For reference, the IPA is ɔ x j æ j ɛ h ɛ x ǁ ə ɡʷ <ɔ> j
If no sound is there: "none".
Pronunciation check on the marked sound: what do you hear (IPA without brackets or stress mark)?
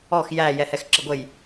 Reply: ə